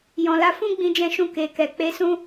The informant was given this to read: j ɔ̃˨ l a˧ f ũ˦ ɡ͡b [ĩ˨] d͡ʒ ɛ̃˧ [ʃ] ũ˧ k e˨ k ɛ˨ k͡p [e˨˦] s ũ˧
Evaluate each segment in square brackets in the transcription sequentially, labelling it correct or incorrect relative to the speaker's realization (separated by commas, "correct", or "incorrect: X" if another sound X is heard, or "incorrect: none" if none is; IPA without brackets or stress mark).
incorrect: ĩ˧, correct, correct